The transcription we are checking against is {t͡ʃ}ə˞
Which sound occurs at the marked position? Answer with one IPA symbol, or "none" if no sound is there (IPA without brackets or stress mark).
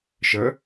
ʃ